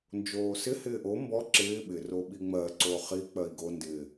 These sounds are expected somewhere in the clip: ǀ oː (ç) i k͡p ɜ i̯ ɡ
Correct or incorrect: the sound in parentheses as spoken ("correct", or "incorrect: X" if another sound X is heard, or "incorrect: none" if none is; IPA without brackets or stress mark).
incorrect: χ